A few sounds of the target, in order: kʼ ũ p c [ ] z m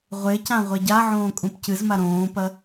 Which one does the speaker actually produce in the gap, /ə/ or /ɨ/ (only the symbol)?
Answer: ɨ